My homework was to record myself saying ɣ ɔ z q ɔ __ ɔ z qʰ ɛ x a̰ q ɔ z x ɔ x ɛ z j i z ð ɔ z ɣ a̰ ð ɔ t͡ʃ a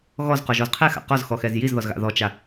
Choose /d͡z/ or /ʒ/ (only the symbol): ʒ